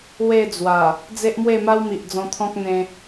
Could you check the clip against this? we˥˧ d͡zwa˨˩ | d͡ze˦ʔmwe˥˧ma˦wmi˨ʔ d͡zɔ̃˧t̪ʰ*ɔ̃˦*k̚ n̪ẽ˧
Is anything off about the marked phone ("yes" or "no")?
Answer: no